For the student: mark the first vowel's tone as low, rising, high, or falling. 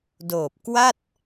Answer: low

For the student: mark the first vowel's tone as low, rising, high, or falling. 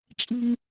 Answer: low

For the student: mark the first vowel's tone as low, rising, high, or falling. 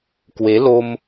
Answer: rising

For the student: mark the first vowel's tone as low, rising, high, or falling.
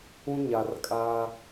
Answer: high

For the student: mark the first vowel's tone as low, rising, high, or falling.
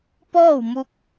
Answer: falling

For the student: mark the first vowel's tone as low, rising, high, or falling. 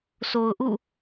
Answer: low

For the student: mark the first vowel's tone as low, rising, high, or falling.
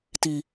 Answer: low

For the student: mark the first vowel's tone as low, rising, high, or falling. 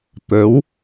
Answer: rising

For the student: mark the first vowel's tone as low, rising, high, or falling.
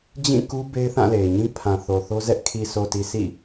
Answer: falling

